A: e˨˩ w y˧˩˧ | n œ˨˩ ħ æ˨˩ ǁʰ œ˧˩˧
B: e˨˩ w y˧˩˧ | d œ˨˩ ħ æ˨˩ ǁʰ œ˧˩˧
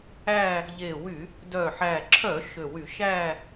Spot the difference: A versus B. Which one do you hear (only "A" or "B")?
B